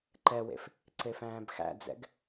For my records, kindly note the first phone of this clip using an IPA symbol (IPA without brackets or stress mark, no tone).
ǃ